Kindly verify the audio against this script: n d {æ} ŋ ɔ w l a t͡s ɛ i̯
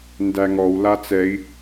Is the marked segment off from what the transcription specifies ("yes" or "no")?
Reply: no